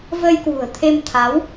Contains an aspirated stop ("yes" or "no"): yes